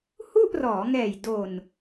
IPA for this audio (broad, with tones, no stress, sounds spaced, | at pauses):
h u˥˩ ʔ r ɔː˩˦ ŋ ɛː˨˩ j d o˨˩ n